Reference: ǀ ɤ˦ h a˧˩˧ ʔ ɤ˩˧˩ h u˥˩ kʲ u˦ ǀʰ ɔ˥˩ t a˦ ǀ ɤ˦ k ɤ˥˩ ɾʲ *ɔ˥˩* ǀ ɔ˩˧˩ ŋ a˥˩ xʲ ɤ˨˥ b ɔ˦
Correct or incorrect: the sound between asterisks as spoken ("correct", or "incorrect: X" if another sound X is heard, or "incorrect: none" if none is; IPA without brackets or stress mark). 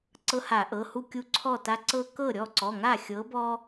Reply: correct